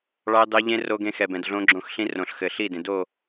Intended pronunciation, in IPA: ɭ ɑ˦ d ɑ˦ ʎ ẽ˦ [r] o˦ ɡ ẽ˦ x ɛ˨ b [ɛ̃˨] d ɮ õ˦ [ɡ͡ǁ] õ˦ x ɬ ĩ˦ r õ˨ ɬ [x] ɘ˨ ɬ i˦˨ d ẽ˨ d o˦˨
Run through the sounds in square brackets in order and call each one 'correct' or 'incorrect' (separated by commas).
correct, correct, correct, correct